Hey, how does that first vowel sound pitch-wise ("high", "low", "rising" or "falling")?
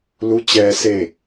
rising